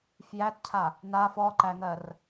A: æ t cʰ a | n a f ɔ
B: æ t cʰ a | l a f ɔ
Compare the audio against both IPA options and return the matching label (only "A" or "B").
A